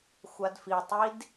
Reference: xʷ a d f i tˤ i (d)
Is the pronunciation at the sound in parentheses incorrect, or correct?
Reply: correct